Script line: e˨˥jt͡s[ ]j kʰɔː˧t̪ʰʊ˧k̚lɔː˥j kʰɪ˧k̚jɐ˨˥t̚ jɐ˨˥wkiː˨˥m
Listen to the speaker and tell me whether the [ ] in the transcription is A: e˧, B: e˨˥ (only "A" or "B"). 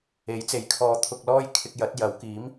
B